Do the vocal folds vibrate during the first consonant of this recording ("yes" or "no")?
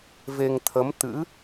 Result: yes